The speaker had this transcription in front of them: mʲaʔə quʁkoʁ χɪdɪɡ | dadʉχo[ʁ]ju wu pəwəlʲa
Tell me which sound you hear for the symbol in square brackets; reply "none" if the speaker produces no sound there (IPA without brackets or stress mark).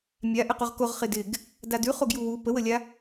ɡ